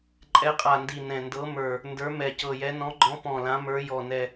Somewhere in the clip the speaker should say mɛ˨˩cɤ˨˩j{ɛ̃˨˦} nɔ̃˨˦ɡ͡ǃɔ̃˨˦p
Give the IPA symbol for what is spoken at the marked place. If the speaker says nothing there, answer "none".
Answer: ɛ˨˦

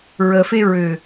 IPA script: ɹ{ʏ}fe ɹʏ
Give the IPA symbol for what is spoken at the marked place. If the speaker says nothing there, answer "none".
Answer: ə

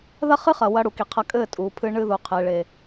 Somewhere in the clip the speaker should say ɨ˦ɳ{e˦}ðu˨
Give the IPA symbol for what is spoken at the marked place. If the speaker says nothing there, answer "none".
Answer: ɨ˦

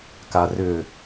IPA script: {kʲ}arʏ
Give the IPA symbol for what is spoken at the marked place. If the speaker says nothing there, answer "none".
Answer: k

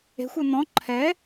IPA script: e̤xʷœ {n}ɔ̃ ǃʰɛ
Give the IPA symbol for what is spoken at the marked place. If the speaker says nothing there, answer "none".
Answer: n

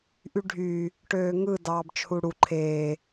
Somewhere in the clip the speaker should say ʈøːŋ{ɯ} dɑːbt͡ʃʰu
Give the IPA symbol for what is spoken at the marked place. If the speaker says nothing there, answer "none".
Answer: ɯ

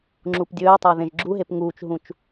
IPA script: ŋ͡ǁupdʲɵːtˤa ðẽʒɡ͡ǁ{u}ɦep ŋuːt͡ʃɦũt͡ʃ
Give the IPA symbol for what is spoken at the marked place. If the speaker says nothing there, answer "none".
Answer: u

